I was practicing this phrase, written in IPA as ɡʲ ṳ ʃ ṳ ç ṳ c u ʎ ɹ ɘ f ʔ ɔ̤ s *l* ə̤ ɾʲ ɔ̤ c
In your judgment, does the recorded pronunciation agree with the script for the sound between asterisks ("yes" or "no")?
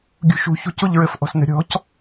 no